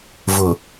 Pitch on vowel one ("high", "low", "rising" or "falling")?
low